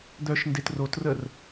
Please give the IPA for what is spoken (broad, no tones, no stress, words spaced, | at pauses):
d̪œʃndet rotrər